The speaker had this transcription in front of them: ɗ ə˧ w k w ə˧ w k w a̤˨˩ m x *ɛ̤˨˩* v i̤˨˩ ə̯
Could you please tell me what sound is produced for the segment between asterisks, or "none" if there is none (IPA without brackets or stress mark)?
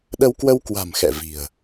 ɛ̰˧˨